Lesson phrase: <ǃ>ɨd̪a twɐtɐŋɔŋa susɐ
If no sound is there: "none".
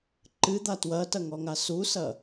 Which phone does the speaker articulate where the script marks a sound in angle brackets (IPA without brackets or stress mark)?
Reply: ǃ